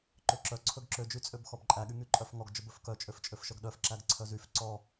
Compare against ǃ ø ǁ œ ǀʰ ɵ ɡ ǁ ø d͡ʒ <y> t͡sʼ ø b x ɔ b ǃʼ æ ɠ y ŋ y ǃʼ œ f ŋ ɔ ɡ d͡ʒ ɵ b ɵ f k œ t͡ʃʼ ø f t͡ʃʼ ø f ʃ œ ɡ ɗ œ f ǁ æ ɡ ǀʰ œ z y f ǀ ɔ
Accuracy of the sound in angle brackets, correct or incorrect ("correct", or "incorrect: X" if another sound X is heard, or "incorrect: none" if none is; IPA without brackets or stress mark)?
correct